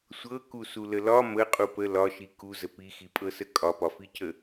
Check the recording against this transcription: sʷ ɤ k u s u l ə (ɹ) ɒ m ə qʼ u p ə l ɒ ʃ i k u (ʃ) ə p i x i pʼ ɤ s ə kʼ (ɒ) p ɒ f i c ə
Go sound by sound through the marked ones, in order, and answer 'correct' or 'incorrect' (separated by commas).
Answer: incorrect, incorrect, correct